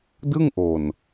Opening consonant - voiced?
yes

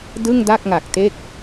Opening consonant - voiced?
yes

